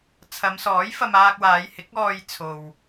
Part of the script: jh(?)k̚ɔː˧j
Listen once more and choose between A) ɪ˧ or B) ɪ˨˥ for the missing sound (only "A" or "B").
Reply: B